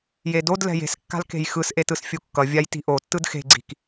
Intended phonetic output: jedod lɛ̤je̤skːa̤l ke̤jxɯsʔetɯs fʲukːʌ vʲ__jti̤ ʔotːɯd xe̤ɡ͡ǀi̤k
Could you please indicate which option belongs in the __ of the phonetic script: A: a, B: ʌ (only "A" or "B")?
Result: A